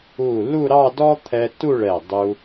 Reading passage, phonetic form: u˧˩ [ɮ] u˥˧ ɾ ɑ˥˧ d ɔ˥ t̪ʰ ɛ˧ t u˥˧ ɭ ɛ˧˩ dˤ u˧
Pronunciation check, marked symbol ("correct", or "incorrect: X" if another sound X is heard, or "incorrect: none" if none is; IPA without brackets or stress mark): incorrect: l